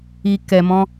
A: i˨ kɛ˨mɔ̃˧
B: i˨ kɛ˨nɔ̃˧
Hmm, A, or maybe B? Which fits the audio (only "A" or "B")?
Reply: A